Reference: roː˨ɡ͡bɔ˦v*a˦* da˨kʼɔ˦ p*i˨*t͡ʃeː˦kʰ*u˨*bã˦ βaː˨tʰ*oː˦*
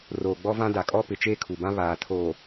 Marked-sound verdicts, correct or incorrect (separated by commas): incorrect, incorrect, correct, incorrect